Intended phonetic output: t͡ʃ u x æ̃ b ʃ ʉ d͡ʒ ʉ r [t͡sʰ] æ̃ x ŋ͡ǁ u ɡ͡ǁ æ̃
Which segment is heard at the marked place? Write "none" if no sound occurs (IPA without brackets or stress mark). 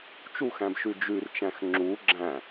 t͡ʃ